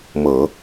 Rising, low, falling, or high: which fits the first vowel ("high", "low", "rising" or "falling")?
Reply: low